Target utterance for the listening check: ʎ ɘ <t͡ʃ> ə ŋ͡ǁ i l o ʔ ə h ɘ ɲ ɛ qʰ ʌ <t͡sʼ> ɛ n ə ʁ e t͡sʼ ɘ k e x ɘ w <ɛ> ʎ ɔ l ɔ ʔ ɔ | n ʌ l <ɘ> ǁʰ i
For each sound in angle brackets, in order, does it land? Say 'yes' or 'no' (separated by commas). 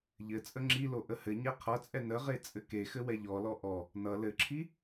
no, yes, yes, yes